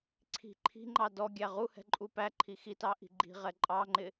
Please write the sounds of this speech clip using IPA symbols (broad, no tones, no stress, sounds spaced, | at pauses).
ǀʰ i̤ ǃʰ i̤ ŋ͡ǃ ɑ d ɔ ɡʲ æ ʁ u h ɛ̤ ǃʼ u p æ ǃʰ i x i t ɑ ʔ i̤ ɡ͡ǃ i̤ ʁ ɛ ǃʼ ɑ ŋ͡ǃ ɪ